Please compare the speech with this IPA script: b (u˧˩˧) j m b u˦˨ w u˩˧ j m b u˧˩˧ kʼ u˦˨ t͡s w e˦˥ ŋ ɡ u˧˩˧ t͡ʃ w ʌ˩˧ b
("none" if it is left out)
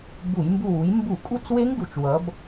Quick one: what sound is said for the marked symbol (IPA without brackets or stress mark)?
u˧˩˧